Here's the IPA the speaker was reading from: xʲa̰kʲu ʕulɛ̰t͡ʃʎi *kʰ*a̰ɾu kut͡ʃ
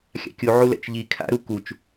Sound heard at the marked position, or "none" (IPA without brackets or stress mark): kʰ